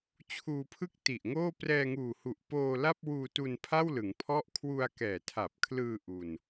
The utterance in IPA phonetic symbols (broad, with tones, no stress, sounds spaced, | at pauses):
t͡ɕʰ uː˧ pʰ ɯ˥˩ k̚ t i˨˩ ʔ ŋ oː˥˩ p r ɛː˧ ŋ uː˨˩ h u˨˩ ʔ p oː˧ l a˥˩ p̚ w uː˧ t u˧ n pʰ a˥˩ w l ɯ˩˦ ŋ pʰ ɔ˥˩ ʔ kʰ w u˧ a̯ k ɛː˨˩ tʰ a˨˩ p̚ kʰ l ɯː˧ ʔ u˧ n